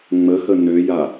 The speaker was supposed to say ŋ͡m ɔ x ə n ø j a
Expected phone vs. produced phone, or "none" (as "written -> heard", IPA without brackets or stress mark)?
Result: ɔ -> ə